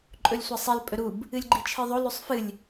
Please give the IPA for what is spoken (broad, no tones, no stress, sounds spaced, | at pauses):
ǃʼ ɵ lʲ sʷ ɐ sˤ i l pʼ ɵ ɾ u b | ɨ lʲ ɡ͡ǃ i t͡ʃʰ ɨ ðˤ o l ʉ sˤ f ɨ lʲ